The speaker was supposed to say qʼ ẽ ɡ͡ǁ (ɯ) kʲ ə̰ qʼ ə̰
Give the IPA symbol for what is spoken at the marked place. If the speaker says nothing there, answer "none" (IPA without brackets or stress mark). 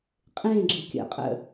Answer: ɯ